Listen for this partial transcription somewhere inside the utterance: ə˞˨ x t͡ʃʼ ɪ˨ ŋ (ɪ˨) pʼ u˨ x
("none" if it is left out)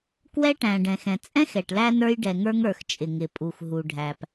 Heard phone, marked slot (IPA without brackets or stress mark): ɪ˨